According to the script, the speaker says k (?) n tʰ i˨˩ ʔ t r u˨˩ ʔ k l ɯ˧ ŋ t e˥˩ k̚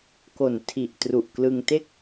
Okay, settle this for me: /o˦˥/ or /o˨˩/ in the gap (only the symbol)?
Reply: o˨˩